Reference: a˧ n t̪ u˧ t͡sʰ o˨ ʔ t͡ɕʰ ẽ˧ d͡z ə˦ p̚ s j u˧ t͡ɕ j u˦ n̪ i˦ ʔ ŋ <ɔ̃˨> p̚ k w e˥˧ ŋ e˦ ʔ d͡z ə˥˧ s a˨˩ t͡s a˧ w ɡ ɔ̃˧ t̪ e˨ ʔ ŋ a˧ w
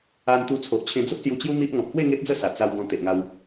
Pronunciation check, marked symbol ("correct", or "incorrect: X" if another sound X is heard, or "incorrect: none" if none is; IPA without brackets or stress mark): correct